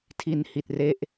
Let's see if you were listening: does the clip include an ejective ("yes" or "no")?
no